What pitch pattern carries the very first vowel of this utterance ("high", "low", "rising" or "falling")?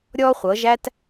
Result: high